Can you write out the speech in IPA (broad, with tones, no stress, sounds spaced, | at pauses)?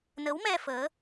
n ə˨˦ w m ɛ˧ f əː˨˦